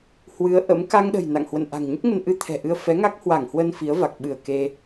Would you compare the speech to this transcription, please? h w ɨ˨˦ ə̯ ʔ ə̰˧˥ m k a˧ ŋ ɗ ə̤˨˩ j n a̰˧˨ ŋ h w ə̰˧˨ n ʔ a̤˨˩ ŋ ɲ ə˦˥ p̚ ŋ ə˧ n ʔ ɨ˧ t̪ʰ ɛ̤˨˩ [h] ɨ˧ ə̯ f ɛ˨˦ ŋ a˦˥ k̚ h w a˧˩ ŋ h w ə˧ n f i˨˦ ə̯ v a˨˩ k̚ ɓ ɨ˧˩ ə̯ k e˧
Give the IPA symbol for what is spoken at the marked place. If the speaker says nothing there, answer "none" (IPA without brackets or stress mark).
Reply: ʔ